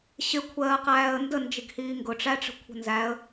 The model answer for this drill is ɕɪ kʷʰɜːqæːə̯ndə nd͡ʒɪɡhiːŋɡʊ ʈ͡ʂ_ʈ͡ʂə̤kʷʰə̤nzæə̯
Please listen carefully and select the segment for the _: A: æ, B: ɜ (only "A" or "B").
A